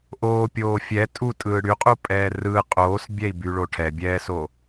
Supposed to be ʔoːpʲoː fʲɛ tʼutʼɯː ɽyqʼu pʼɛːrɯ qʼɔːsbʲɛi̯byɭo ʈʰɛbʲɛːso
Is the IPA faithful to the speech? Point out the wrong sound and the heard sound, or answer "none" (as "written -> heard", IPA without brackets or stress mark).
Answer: ɔː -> oː